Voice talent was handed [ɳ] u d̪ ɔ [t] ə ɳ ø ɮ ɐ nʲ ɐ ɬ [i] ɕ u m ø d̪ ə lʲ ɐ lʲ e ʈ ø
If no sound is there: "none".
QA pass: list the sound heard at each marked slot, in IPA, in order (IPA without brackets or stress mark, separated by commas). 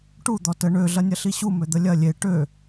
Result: ʈ, t, i